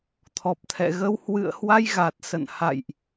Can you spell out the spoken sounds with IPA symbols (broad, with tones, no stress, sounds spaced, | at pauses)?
t̪ʰ ɔ˨˩ p̚ t̪ʰ ɛ̰˧˨ ɣ ə˧ w h w ɨ̰˧˨ ə̯ h w a˧ j ɣ a˨˩ t̚ s ə̰˧˨ n h a̰˧˨ j ʔ